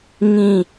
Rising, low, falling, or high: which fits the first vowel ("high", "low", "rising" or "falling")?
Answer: falling